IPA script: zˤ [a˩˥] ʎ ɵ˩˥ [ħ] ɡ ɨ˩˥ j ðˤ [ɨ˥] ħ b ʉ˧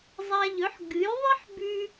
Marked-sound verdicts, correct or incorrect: incorrect, correct, correct

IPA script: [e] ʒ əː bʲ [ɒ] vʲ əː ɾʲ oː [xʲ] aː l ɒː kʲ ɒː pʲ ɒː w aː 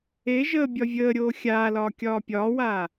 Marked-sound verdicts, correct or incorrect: correct, correct, correct

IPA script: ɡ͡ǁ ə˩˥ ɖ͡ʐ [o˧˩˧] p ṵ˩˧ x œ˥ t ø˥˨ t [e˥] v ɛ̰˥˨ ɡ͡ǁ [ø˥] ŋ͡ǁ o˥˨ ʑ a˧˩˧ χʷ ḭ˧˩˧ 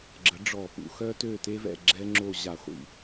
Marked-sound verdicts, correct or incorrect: incorrect, correct, incorrect

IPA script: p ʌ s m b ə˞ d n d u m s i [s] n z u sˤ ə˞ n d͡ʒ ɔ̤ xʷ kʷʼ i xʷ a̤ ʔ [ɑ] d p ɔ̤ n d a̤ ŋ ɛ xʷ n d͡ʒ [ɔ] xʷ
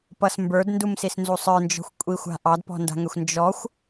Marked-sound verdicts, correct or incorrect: correct, correct, correct

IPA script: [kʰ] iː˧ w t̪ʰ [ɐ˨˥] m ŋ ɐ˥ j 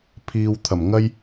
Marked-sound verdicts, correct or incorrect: incorrect, incorrect

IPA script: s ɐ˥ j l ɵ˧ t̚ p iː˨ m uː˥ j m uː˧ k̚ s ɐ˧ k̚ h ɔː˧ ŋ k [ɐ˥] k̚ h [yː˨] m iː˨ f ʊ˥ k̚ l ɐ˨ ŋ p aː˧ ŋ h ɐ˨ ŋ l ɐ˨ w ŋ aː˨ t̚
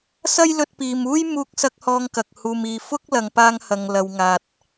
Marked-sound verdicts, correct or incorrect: incorrect, incorrect

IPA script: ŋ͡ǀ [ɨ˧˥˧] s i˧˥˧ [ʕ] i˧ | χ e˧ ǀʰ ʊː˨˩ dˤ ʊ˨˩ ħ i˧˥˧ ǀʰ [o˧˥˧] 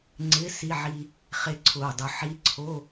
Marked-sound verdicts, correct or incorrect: incorrect, correct, correct

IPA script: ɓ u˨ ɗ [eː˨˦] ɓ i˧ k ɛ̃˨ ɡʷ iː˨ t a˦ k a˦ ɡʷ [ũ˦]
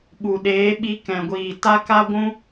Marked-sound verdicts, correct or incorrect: correct, correct

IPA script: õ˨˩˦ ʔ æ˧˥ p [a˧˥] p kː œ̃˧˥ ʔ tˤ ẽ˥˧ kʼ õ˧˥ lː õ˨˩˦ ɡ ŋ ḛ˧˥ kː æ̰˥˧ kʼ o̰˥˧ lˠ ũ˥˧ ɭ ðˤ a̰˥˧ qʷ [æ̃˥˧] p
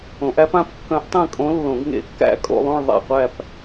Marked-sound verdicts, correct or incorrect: incorrect, incorrect

